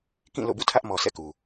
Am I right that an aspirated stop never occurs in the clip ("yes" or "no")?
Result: no